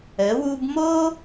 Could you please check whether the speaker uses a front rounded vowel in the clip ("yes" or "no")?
no